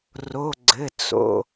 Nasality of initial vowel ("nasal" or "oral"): oral